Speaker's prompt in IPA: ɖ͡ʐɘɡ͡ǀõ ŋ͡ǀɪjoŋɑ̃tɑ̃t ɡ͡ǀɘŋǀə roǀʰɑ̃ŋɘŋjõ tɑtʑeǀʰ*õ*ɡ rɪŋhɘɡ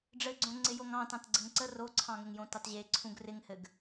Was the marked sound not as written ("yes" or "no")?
yes